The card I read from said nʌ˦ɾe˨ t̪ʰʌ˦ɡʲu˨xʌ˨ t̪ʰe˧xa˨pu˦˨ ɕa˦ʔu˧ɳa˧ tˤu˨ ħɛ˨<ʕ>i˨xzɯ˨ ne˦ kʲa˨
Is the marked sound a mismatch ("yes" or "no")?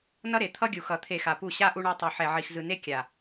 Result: no